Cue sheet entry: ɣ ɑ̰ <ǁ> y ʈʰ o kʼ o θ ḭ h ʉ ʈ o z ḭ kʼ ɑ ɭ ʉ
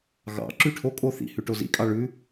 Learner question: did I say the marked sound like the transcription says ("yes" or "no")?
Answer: yes